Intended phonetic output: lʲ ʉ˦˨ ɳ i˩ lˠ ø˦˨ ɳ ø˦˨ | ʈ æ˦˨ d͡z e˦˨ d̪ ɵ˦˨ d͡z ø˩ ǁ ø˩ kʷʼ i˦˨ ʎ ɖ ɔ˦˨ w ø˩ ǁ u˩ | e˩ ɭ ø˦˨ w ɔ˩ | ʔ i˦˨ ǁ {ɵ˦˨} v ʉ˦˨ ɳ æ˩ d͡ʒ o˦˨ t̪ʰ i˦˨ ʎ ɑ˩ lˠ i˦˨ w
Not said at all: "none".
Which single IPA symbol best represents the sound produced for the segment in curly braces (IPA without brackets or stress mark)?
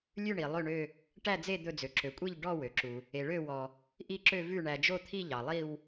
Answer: ø˦˨